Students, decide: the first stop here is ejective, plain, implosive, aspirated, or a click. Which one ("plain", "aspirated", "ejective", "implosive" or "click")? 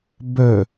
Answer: plain